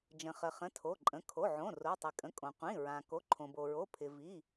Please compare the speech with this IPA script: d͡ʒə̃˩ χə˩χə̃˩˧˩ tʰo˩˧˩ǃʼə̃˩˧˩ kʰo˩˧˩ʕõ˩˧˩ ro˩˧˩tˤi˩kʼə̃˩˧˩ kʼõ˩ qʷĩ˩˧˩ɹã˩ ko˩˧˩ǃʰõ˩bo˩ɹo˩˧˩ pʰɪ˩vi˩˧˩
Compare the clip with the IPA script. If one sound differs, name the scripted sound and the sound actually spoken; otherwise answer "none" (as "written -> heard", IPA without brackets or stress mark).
none